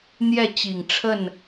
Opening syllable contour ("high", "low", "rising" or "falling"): falling